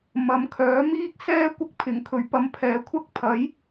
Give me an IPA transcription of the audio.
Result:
m ɐ˨˥ m kʰ œː˨˥ m iː˥ k̚ s ɛː˥ kʷ ɐ˥ k̚ pʰ ɪ˨˩ ŋ kʰ ɵ˨˩ ɥ p ɐ˧ m pʰ ɛː˨˥ kʷʰ ɐ˥ k̚ pʰ ɐ˨˥ j

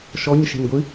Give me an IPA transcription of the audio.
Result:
ʃ ɔ ɲ ʃ e̤ n ɡʷ ɨ

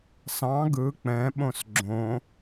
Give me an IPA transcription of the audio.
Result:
s ɑ̃ ɡ ɯ k͡p ɛ̃ ɓ õ s ɡ͡ǁ õ

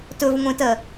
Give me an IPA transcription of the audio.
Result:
t ɵ v ŋʷ ẽ t ɜ

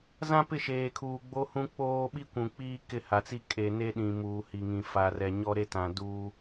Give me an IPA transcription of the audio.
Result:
z ã˦ p ɪ˦˨ ʃ eː˨ kʰ uː˨ ɡ͡b o˦ h ũ˦ k͡p oː˦ ɓ i˦ kʷ ũ˨ k͡p iː˦ k ɪ˦˨ h a˨ t͡s i˦ kʼ e˨ n e˦ ɗ ĩ˨ m uː˨ h i˨ ŋ ĩ˨ f a˨ r ɛ˨ ɲ ɔ˦ ɾ e˦ t ã˨ d uː˦

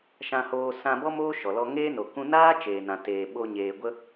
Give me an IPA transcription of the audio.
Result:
ʃ ã˧ h oː˧ s ã˧ b ɔ˦ m oː˦ ʃ ɔ˨ l ɔ˧ ŋ eː˦ n o˨ k ũ˧ n aː˦ t͡ʃ eː˨ n ã˨ t eː˨ ɓ o˧ ɲ eː˨ ɡʷ ə˧

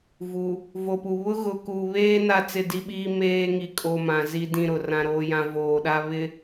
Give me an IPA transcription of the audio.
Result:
v u˨ | v o˨ p u˨ β ʊ˦ ɣ ʊ˨ k u˨ β eː˦ n a˦ t͡s ɪ˦˨ d i˦ ɓ iː˦ m eː˦ ŋ i˨ kʼ o˨ m ã˨ z i˦ d ĩ˦˨ ɾ ʊ˨ r ã˦ ɾ oː˦ j ã˦ v oː˨ ɗ a˦ β ɪ˨

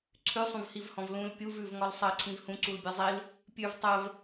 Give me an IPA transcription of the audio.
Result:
ǀʰ ʉ sˤ ũ v h i v h ɔ̃ v l ũ l pʲ u v ʉ v ŋ ɔ l sˤ ɜ ǀʰ ĩ v h ũ ǀ u l bʲ e zˤ i l | pʲ ʉ v tˤ ɜ v

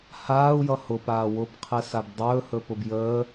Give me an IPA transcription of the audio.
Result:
h aː u̯ j ʌ h ʊ p aː w ʊ b qʰ ɛ s a b dˤ ɵː h ɵ p ʊ b j əː

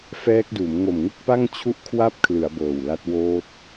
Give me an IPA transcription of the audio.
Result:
f ɛː˦˥ k̚ d uː˩˦ m ŋ o˨˩ m ŋ u˥˩ k̚ p a˥˩ ŋ t͡ɕʰ u˥˩ ʔ kʰ w a˥˩ p̚ kʰ l ɯ˩˦ a̯ b ɤː˨˩ w l a˦˥ t̚ w oː˦˥ t̚

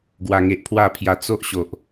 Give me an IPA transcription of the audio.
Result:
ɡ w a˨˩ ŋ e˨ ʔ pʰ w a˥˧ pʰ j a˧ t͡s o˦ ʔ ɕ o˨ ʔ

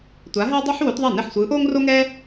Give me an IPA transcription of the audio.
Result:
tʷ a˨˥ ɦ ɛ˥ dˤ e˥ ħ w o˨˥ t ðˤ ɛ˥˩ n e˥˩ ħ sʷ ɯː˨˥ ʔ oː˥ ŋ r o˥ ŋ ɛː˥

